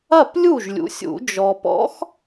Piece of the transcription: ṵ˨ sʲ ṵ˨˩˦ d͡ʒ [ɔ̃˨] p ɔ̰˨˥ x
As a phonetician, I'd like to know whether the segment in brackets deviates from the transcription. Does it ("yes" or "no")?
yes